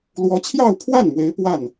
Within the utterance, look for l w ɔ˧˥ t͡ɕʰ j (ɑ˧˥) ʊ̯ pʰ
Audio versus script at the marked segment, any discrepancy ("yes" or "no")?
yes